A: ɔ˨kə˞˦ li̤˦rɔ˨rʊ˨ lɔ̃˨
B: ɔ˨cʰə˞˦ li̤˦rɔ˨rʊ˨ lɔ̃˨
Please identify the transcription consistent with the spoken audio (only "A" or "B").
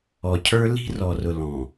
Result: B